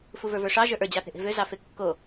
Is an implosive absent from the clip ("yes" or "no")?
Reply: yes